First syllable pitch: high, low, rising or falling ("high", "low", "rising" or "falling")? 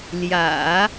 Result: low